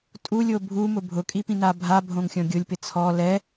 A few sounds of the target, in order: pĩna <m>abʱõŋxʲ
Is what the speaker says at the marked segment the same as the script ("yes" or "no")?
no